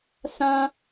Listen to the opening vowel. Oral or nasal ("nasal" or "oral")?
nasal